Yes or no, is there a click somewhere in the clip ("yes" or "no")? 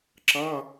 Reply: yes